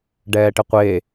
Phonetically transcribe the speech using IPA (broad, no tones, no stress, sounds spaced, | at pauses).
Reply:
ɖ ɛː ʈ ɪ qʷ e